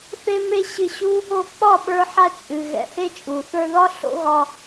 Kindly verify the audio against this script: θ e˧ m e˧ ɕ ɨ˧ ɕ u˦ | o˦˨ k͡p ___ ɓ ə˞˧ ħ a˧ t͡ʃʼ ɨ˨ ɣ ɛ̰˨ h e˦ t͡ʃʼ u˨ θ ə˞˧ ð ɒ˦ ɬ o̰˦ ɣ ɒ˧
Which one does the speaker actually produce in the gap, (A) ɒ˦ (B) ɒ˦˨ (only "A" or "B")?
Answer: B